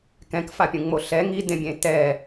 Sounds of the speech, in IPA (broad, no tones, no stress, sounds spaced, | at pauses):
k ɛ̃ k f a pʲ ũ ŋ͡m o ɬ ɛ ŋ i d ẽ bʲ ẽ t ɛ